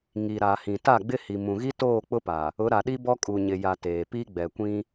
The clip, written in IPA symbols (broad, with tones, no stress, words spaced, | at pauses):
ŋi˨ɾa˨ hĩ˨ta˦˨ɡ͡bɪ˦ hi˨mũ˨ɣi˦ toː˦˨k͡pʊ˦pa˨ | ʊ˨˦ɾa˨ɗi˦ bɔ˦kʼu˨ɲɪ˨ja˨ teː˨pi˦ ɡ͡bɛ˨kʷĩ˦